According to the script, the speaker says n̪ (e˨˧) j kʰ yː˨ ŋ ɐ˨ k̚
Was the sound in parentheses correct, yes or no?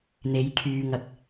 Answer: yes